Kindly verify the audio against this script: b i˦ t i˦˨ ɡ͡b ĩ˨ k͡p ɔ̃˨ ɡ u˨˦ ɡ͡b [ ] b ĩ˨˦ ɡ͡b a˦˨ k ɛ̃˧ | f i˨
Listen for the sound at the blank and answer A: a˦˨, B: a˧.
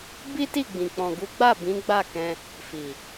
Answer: A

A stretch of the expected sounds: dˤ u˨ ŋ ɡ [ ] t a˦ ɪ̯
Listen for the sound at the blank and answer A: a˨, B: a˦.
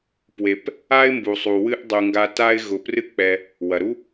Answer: B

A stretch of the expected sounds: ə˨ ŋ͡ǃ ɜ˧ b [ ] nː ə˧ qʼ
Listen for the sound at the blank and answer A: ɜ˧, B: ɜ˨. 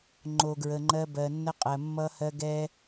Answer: B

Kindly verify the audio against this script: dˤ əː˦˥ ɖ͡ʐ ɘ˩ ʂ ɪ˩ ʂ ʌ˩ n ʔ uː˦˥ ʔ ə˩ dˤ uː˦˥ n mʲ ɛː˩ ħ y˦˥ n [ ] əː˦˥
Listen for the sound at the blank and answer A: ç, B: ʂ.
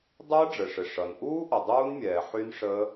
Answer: B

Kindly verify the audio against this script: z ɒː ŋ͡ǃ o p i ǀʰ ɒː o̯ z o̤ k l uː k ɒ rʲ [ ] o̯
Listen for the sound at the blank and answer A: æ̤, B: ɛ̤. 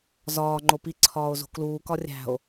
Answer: A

